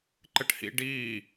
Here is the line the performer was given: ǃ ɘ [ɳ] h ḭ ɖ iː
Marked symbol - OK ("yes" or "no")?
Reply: no